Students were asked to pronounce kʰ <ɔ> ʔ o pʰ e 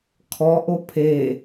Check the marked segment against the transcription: correct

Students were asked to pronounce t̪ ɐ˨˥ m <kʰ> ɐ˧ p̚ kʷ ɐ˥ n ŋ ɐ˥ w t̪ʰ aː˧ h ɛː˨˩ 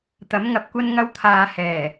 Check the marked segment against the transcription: incorrect: ŋ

